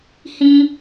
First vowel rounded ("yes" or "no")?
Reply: no